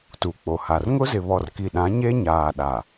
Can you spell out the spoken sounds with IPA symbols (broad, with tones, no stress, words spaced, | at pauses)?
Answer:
tu˨k͡po˨ha˨r ŋʊ˦zɪ˨ βɔ˨rki˨ɗã˨˦ ɲe˦ɲaː˨ɗa˨